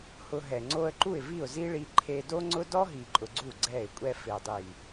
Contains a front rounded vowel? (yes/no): no